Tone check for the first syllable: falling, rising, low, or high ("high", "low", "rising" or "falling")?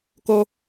high